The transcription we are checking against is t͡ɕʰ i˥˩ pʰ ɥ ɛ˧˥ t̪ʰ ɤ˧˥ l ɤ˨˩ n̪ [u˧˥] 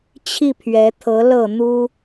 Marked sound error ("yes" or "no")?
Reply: yes